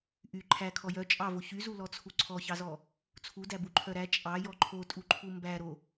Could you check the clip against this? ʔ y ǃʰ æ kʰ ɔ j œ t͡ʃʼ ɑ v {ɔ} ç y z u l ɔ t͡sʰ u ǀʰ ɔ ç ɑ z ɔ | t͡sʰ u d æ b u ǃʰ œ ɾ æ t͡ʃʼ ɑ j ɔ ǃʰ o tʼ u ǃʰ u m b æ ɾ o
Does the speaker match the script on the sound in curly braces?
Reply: no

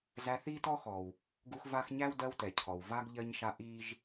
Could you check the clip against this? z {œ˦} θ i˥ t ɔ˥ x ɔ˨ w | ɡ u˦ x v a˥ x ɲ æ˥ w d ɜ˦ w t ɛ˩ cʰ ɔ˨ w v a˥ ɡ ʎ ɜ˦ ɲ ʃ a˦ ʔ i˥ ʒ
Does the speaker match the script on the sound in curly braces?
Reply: no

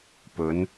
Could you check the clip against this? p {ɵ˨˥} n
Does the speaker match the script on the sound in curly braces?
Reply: no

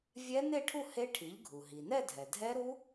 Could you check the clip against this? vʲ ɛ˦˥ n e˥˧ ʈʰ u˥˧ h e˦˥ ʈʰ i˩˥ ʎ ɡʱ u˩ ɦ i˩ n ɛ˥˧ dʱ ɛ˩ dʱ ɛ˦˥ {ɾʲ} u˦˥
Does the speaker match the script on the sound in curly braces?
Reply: no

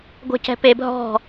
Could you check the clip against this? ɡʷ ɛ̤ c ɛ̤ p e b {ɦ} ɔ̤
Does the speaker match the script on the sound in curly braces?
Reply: yes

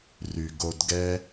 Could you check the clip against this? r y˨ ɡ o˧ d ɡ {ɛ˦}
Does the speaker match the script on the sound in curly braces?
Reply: yes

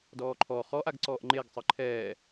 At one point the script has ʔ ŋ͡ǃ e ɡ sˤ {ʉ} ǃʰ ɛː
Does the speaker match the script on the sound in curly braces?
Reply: no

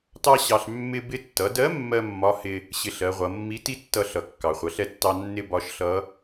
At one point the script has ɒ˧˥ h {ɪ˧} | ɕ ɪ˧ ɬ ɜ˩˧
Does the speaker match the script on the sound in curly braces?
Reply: yes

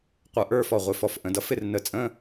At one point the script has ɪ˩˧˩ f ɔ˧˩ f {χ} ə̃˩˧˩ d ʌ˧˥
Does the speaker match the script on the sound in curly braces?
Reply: no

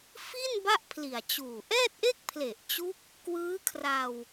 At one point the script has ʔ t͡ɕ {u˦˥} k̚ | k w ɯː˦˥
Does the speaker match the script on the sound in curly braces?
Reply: yes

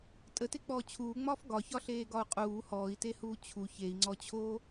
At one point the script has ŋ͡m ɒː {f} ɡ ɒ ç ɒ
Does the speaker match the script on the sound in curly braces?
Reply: yes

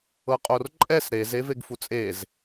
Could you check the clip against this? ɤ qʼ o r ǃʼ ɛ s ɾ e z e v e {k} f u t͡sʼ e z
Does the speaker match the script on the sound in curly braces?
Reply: no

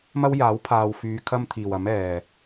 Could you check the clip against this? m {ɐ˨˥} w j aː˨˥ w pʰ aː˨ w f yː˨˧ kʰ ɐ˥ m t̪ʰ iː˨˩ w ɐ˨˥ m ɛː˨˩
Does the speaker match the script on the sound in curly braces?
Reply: no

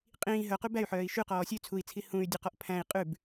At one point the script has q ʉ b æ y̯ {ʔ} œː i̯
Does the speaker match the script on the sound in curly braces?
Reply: no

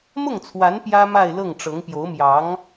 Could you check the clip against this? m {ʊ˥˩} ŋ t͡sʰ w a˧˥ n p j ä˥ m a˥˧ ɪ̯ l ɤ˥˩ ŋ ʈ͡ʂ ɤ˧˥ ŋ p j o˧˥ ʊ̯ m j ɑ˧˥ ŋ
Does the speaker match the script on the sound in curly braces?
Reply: yes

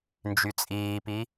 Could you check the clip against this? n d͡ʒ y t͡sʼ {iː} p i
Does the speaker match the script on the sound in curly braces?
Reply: yes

